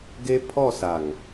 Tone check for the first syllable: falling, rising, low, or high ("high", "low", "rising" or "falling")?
high